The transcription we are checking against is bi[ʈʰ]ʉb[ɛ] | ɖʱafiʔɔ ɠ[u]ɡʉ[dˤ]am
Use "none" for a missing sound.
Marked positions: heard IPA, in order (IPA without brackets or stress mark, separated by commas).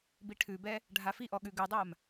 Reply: ʈʰ, ɛ, ʉ, dˤ